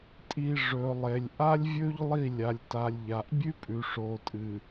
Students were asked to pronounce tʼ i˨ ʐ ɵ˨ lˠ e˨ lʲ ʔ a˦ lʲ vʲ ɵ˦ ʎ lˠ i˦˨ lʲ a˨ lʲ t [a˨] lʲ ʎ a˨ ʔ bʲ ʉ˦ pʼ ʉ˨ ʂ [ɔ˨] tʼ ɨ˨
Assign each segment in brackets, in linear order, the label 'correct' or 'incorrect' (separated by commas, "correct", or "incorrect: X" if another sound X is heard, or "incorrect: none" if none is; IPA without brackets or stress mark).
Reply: correct, incorrect: o˨